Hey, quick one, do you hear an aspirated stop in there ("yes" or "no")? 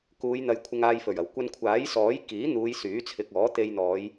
yes